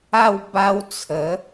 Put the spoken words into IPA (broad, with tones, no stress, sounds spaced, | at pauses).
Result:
a˥˧ w b a˧ w t͡sʰ ə˨˦